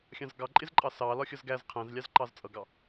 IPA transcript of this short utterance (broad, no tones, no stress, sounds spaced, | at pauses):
xʲ ɑ̃ z ɡ ɑ ǃʼ ɪ z ǃʼ ɑ s ɑ l ɒ xʲ ʌ z ɡ æ z qʰ æ̃ z lʲ ɑ z ǃ ɑ z t͡sʼ ʌ ɡ ɑ